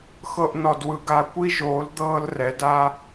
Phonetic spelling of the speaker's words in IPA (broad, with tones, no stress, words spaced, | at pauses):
xɤ˧ʔnɔ˨dwɯ˨ɡa˧ kʷi˦ʒoː˨˦l d̪ɤː˦lrɛ˨˦da˦